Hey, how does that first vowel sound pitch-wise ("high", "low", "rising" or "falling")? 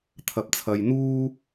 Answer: low